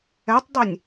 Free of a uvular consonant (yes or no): yes